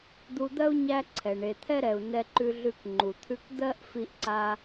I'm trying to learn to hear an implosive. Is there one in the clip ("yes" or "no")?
no